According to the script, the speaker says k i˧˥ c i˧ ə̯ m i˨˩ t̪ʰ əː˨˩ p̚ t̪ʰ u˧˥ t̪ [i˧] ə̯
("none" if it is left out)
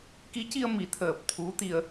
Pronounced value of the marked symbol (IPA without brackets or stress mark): i˧